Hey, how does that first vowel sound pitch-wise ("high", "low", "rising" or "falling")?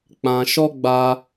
low